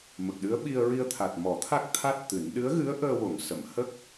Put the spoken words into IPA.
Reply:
m ə˨˩ k̚ ɗ ɨ˧˥ ə̯ ɓ i˧ ə̯ ɹ i˧ ə̯ t̪ʰ a˨˩ t̚ m ɔ˨˩˦ t̪ʰ a˦˥ k̚ t̪ʰ a˦˥ t̚ t̪ ɨ˨˩˦ n ɗ ɨ˧˥ ə̯ ɣ ɨ˧˥ ə̯ ʔ əː˧ w o˨˩˨ ŋ s ə˨˩˨ m h ə˦˥ k̚

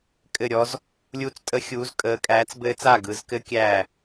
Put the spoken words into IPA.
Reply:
kʼ ɘ˥˨ ɾʲ ɔ˦˥ z | lʲ u˦˥ t͡s tʼ ə˦˥ xʲ uː˨˦ z kʼ əː˨˦ kʼ æː˨˦ t͡s b ɘː˦˥ t͡s a˥˨ ɡ ɯ˨˦ z k ɘ˦˥ kʲ æː˥˨

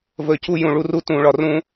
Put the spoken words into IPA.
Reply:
v əː˧˩ c u˦ j ũ˧˩ ɭ u˦ r u˦ t ũː˧˩ ɭ ɒ˧˩ r ũ˦

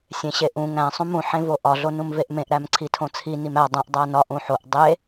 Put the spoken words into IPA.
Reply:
sʲ ẽ ɕ e ʔ ũ ŋ æ̃ sˤ ũ m ũ ħ ẽ v o ʔ ɒ ɮ o n ũ m v e ʔ m ẽ ʔ ɾ æ m ǀʰ i tʰ õ t͡sʰ i n i m æ dˤ õ ʔ dˤ æ n ɒ ʔ ũ ħ o ʔ dˤ e

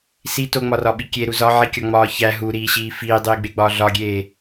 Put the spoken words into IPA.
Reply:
s i t o ŋ͡m ɒ r ɒ ɓ i kʲ e ɾ u z ɒ ʕ i kʲ ɒ ŋ͡m ɒː ç æ ɦ u ɾ iː ɕ iː f iː dˤ iː ɡ͡b e ɡ͡b ɒː ɮ ɒ ɡʲ eː

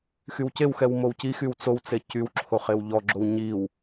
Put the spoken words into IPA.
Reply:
x y w c e w x ɛ w m o w c i x y w t͡s o w t͡s e c y w ǁʰ o χ e w ʎ ɔ ɡ͡ǁ o w ɲ i w

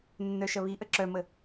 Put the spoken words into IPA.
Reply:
nː œ ʃ ɐ β i ʔ ə ǁ œ m ə

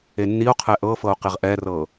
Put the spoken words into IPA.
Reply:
e nː i o̯ qʰ ɛ ʔ ɤ f ɤ o̯ q e ʁ ʔ ɛ r ɤ

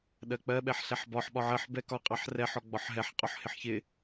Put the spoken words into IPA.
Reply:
ɗ ɜ k͡p ɜ ɓ ɛ ħ ɬ ɛ ħ b ɒ ħ ɓ ɒ ʕ ɜ ħ b ɛ k ɒ qʼ ɑ ħ r ɛ ħ ɔ ɡ͡b ɒ ħ ɦ ɛ ħ qʼ ɔ ħ h ɪ ħ ç ɪ

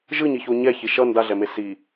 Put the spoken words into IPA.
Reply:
ʒ ɯ ɲ i ç o ɲ ɛ ç i ʃ ʌ n d a ɮ ɛ m e s i

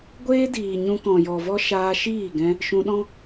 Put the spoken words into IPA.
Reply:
ɡʷ eː˦ d iː˨ ɲ ũ˧ k ɔ̃˨ j ɔ˨ v ɔ˦ ʃ aː˧ ʃ iː˦˨ ɡ ɛ̃˧ | ʃ ũ˧ ɗ ɔ̃˦

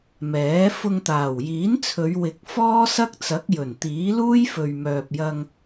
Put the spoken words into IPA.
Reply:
m ɛː˨˥ f ʊ˧ ŋ t̪ aː˨˩ w j iː˨˥ n t͡sʰ ɵ˨˧ ɥ w ɪ˧ k̚ f ɔː˥ s ɐ˥ k̚ t͡s ɐ˨˥ k̚ j ɵ˨˩ n t̪ iː˨˥ l uː˥ j f ɵ˨ ɥ m œː˨ p̚ j ɐ˧ ŋ

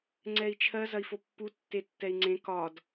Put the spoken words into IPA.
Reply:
ŋ͡ǀ ɛ i̯ t͡ʃʰ ɜ z ɐ i̯ f o pː u tː e tː ɛ i̯ ŋ͡ǀ ẽ k ɒ d

